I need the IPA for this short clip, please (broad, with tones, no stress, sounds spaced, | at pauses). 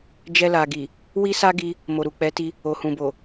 d͡ʒ ɛ˧ l a˨ ɡ i˨ | w i˦ s a˦ ɡ i˧ | m o˨ ɾ u˨ k͡p ɛ˨˦ t i˧ | o˨ h ũ˨ b o˨